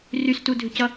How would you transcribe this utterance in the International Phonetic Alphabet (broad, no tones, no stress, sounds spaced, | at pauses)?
r y s t u dʱ ʏ c ʌ